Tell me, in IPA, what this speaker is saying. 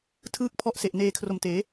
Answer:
tʰ ɯː˥˩ k̚ pʰ ɔ˥˩ ʔ s e˨˩ ʔ n eː˧ kʰ r o˨˩ m t eː˩˦

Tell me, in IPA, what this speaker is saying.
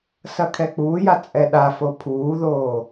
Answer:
s ɐ kʰ ɛ k͡p uː j a t͡sʼ ɛ ɗ a f o pʰ uː ð oː

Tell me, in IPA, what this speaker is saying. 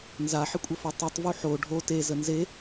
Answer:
n z a ħ ɪ kʷʼ ə f o tˤ u tˤ v u ħ o ɖʱ o t e z ə n z e

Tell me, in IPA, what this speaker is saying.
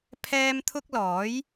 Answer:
pʰ ɛː˥ m t̪ʰ ʊ˥ k̚ l ɔː˨˥ j

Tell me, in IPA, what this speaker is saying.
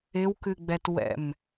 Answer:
ɪ w k ɨ ɡ͡b ɛ t w ɛ̰ m

